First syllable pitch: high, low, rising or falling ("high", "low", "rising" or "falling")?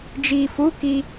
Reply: low